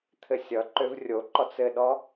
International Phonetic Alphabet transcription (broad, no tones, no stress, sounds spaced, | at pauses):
t̪ʰ ɘ sʲ ʌ ǃ ø v rʲ o ǃ ɔ t͡s ɘ ɗ ɔ